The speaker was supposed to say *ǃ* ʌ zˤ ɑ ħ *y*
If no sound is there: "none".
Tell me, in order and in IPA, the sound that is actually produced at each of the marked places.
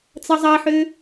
t͡s, ø

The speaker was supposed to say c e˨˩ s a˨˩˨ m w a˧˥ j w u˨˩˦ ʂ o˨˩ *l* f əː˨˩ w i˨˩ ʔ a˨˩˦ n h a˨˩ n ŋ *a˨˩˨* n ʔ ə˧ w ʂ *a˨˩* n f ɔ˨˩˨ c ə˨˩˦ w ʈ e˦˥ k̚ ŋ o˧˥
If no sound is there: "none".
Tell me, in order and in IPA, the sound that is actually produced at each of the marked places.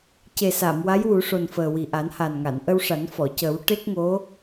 n, a˨˩˨, a˨˩˦

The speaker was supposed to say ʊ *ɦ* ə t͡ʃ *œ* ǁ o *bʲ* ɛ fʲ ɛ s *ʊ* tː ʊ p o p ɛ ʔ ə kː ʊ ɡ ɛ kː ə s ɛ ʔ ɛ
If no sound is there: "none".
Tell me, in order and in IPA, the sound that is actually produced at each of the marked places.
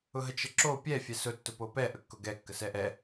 ɦ, ə, pʲ, ʊ

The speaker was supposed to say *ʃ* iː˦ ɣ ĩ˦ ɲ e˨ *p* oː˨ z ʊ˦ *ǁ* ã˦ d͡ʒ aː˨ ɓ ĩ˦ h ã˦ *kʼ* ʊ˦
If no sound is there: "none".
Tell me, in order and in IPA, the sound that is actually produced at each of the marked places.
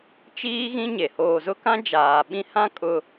t͡ʃ, h, k, kʼ

